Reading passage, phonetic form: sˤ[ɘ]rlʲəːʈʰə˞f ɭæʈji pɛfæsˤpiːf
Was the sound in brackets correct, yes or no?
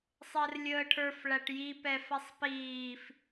no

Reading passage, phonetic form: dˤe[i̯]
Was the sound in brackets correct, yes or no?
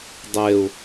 no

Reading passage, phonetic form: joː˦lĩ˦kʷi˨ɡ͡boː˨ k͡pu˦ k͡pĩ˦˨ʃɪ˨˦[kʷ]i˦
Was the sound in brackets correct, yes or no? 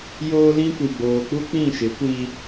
yes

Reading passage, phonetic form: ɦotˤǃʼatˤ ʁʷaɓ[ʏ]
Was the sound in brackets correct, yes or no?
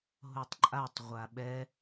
no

